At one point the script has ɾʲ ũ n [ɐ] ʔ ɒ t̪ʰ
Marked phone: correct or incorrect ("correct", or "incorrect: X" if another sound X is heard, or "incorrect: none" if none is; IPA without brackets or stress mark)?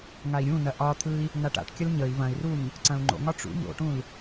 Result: correct